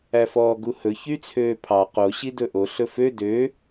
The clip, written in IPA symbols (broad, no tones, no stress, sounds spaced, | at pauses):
æ f ɔː ɡ u h ɵ ç y t͡sʰ øː pʰ ɑ q o ɕ i d ɵ ʔ o ɬ ɵ f ø d ø